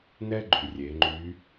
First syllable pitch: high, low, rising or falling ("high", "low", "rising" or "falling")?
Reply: high